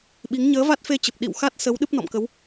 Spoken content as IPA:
ɓ i˨˦ ŋ ɲ əː˨˦ v a˦˥ t̚ f e˧ t͡ɕ ə˨˩ p̚ ɗ ḭ˧˨ w x a˦˥ t̚ s ə˨˦ w ɗ ɨ˦˥ p̚ n ɔ̰˧˨ m k ə˨˦ w

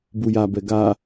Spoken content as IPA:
b u j a b ɛ ɡ a

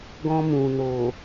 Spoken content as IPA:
ɡ ɔ̃˧ m ũ˨ n o˨

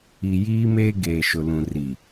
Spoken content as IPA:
i˨ j iː˦ m eː˦ ɡ eː˨ ʃ ʊ˨ l ũ˨ r i˨

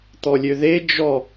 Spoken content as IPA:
t̪ ɔ lʲ ø ð e d͡ʒ ɔ

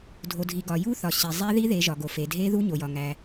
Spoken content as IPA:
dʱ o˨ dʱ i˨ ɡ ɒ˨ j u˦˥ θ ɒ˨ ɕ i˨ zˤ e˦˥ ð i˦˥ ð e˨˦ ʒ ɒ˨ ɡ o˨ f e˨ dʱ e˦˥ ð u˦˥ ɲ o˨ j ɒ˨ ŋ æ˨

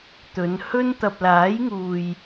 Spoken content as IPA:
t̪ ɵ˨˧ n h ɵ˥ n t̪ ɐ˨ p̚ l aː˨˥ j ŋ uː˨ j

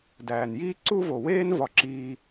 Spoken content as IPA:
d æː˨ n j iː˦ ǀ u˦ v o˨ w eː˦ n v ɒ˧ ǁ iː˧

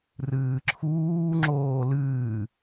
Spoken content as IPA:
r ɨː ǁʰ uː ŋ͡ǁ oː l ɨː

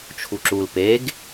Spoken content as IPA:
t͡ʃʰ u ǁ u l p e ɡ

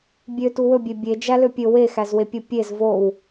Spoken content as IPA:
bʲ ø t u w ɵ bʲ e bʲ e d͡ʒ æ l ø pʲ ɵ w e x æ z w e pʲ o pʲ e z v o w

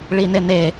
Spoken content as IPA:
ɭ i n e n e

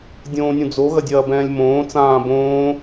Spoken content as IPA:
dʲ õː nʲ ũ d͡z o ɣ ɐ dʲ ɐː b ɛ̃ː lʲ m õː t͡s ãː b õː

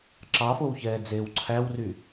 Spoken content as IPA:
ǁ ɑ f o w ç ɛː d͡z eː w ǀʰ æ w r y

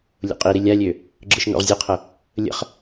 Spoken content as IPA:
lʲ o̰ qʼ i ɾ i lʲ a lʲ ø | ɡ͡ǁ ɯ ʃ n o̰ ʁ zʲ ɘ qʰ ə | lʲ ə̰ χ

